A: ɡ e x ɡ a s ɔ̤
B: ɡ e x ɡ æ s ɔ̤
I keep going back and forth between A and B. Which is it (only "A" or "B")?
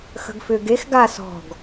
A